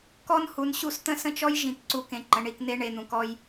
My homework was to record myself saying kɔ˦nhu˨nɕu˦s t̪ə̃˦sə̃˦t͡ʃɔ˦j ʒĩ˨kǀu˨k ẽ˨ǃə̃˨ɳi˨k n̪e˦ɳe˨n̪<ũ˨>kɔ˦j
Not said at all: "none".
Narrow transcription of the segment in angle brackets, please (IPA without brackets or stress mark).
ũ˨